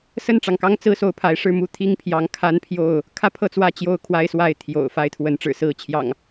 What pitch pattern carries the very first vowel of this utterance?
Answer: falling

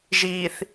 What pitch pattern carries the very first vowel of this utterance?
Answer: low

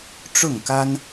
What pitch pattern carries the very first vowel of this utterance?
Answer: falling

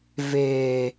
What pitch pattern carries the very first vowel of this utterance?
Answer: high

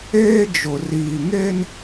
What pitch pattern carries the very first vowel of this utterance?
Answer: high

